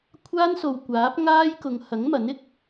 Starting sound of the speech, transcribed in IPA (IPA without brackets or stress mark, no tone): kʷʰ